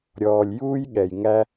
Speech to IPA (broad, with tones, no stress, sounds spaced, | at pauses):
ɾʲ ɔː˨ lʲ j uː˦ j ɠ ɛ˨ j ŋ æ˦